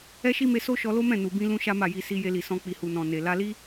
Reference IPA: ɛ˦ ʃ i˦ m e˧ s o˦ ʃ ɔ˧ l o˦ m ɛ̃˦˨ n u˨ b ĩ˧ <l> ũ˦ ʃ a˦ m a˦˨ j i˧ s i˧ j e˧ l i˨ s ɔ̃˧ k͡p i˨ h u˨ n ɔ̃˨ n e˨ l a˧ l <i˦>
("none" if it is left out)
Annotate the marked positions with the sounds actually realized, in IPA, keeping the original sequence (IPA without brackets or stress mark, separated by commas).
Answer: l, i˦